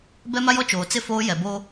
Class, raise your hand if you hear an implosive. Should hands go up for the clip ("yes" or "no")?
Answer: no